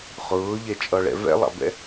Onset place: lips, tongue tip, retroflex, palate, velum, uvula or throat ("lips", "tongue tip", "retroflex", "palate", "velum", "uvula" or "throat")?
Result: uvula